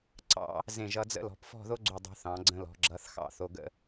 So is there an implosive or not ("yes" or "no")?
no